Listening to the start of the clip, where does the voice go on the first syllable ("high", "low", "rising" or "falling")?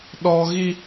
high